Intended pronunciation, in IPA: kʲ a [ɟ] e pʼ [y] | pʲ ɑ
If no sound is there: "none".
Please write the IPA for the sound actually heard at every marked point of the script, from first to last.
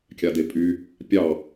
d, y

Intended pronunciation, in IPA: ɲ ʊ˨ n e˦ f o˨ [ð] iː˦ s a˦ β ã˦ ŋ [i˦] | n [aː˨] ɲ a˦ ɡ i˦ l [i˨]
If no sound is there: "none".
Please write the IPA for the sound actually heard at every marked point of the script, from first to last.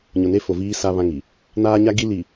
v, i˨, aː˦, i˨

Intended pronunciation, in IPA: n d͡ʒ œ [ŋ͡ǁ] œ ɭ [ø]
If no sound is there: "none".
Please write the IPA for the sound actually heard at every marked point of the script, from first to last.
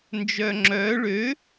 ŋ͡ǁ, ø

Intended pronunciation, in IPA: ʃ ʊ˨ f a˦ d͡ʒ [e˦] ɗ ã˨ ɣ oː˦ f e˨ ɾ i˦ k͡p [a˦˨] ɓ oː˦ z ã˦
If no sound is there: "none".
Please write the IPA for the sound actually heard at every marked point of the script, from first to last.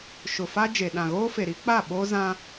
e˨, a˦˨

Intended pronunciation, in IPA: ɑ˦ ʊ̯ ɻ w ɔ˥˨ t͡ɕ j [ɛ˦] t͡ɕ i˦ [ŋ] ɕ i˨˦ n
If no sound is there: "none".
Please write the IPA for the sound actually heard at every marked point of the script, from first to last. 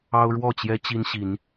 ɛ˦, n

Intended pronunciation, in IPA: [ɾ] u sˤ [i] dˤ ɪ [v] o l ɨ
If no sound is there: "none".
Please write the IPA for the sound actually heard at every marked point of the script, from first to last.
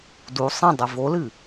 d, ĩ, v

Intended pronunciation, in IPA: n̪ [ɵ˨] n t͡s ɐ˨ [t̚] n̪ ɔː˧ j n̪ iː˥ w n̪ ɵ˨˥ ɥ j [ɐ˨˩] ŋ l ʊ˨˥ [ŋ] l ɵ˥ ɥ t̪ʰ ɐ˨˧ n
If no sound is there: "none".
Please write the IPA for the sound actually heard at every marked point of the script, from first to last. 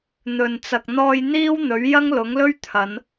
ɵ˨, k̚, ɐ˥, ŋ

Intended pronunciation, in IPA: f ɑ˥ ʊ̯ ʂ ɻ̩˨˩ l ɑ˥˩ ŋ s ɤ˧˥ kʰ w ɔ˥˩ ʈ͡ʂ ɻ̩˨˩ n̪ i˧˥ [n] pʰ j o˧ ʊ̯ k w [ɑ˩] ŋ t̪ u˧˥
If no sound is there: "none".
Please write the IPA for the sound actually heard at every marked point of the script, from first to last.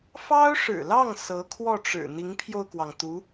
ŋ, ɑ˩

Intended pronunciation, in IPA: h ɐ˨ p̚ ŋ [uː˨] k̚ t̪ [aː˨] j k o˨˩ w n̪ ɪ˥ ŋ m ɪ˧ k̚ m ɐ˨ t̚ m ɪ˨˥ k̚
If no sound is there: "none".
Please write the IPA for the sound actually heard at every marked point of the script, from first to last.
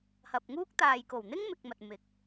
uː˥, aː˨

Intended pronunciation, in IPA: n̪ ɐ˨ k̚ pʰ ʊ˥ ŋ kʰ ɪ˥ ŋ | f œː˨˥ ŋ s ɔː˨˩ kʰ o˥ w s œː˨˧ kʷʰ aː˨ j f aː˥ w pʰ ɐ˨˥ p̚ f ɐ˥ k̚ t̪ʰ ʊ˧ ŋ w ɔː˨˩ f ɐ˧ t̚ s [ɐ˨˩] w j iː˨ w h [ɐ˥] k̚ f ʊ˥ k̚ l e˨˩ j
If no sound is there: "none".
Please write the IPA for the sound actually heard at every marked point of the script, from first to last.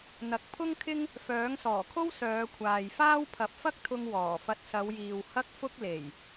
ɐ˨˧, ɐ˥

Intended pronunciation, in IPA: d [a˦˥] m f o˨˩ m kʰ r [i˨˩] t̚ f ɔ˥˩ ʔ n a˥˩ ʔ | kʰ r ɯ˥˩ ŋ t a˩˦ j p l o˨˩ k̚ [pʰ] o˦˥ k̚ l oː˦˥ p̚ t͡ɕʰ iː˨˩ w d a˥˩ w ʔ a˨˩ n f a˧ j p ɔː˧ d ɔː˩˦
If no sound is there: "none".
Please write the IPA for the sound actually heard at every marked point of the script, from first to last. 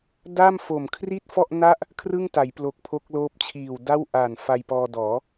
a˥˩, i˥˩, pʰ

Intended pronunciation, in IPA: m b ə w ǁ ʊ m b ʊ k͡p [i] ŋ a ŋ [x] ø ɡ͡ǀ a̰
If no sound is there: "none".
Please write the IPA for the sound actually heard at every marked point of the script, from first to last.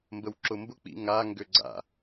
ḭ, ɡ

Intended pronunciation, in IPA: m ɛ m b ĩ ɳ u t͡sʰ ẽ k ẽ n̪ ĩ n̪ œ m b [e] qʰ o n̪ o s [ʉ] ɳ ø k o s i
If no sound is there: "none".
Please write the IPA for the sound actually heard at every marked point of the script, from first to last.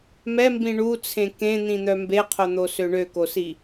e, ø

